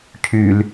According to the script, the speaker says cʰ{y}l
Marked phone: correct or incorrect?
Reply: correct